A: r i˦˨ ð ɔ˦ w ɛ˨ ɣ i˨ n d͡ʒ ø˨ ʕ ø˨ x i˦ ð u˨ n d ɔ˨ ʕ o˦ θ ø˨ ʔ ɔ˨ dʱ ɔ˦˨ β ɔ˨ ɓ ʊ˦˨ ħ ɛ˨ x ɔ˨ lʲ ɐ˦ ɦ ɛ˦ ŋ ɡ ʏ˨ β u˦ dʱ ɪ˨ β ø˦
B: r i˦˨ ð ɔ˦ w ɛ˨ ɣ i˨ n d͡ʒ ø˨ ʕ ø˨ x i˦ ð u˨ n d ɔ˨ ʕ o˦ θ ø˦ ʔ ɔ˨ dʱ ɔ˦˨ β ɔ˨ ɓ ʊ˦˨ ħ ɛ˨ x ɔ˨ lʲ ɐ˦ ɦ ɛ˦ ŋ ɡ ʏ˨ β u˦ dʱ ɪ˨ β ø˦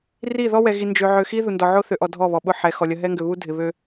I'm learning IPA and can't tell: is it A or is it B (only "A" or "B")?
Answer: A